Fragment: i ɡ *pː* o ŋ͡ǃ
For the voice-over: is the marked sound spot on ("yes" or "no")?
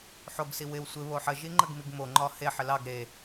no